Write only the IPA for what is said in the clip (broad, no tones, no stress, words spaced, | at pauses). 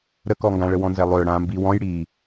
ɾəkɔŋɡãɭə wɔ̃nzɛlˠʏː ɽãːmbi wɔ̃j ɽi